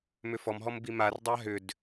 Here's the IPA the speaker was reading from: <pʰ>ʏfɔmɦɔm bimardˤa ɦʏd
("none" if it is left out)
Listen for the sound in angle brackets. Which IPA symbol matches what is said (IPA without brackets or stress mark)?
m